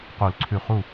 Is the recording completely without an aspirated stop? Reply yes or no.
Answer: no